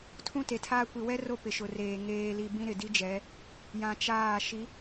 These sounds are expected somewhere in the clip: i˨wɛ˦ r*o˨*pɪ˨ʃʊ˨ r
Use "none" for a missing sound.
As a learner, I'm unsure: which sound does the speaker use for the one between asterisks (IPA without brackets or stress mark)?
o˦